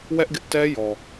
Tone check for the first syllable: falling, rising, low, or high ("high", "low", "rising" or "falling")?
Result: high